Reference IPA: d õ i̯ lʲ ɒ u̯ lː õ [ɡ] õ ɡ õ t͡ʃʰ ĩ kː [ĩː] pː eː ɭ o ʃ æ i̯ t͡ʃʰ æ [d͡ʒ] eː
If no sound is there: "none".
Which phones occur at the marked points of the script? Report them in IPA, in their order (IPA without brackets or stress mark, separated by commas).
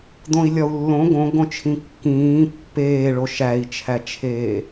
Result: ɡ, ĩː, t͡ʃʰ